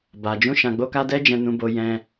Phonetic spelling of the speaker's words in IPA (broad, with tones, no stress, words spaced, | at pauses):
ba˧ d͡ʒũ˦ʃã˧ɡ͡bo˦ka˦ dɛ˦d͡ʒɛ̃˧nũ˧bo˧ jɛ̃˧